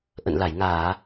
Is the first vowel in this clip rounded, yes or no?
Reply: no